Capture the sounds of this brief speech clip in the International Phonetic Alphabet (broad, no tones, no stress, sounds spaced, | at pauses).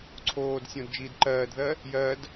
ǀʰ oː d sʲ õ d d͡ʒ iː d ǃ ɜː d ð ɜ | j ɜ d